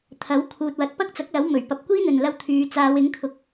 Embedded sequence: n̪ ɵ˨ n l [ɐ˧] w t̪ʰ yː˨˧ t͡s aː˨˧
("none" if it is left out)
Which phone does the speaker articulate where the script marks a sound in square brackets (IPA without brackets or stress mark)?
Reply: ɐ˧